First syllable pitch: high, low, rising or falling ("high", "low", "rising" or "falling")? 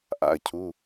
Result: falling